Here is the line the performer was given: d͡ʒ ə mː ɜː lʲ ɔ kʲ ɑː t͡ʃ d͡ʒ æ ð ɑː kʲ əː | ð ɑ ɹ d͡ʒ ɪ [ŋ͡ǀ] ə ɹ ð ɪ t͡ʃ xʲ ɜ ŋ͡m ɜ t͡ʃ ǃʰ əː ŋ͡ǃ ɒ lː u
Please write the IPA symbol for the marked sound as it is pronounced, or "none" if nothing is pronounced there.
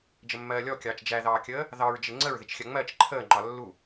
ŋ͡ǀ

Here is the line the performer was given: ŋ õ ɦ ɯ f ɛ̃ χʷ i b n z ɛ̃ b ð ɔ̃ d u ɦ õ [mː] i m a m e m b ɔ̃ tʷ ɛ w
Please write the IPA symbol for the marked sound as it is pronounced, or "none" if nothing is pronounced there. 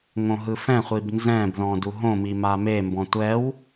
m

